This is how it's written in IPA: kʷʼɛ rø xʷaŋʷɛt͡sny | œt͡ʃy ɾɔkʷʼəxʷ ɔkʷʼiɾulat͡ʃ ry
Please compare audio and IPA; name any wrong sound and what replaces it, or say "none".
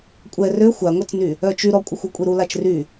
none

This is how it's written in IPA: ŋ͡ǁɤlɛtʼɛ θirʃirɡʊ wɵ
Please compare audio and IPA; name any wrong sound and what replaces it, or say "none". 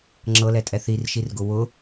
ɵ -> ʊ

